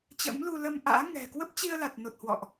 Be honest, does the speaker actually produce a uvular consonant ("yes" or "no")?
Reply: no